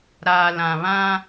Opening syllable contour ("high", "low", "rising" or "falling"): low